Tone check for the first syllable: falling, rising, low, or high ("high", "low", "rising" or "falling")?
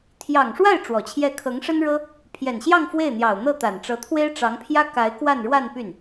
low